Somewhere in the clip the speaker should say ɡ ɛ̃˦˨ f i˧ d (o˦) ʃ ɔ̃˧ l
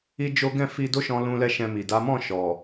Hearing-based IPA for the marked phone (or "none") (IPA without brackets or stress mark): o˦